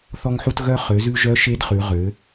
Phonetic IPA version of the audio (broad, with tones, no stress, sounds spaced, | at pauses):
θ ɔ˧ ŋ ħ u˧ t ɣ œ˧ χ ø˩˧ z ʉ˧ ʒ œ˦˥ ʃ e˦˥ d χ ʉ˩˧ ʁ ø˩˧